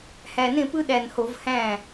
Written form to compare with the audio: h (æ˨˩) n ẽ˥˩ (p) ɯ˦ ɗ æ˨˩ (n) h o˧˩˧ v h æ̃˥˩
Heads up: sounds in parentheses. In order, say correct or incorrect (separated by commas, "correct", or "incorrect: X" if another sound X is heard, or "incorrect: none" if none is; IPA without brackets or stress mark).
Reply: correct, correct, correct